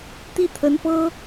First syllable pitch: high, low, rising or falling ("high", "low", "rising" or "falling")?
falling